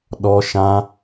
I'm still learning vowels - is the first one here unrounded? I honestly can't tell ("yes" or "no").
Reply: no